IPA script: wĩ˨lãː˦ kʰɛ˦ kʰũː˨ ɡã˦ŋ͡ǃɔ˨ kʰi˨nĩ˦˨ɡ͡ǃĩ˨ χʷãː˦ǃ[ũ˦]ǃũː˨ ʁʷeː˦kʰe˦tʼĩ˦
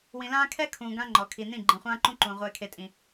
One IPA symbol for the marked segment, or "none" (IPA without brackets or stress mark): ũ˦